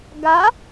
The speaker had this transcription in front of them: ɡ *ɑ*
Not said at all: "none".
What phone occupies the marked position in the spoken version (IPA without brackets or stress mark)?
a